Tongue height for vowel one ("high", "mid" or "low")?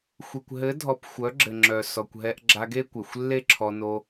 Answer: mid